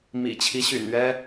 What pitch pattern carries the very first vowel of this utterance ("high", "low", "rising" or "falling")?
low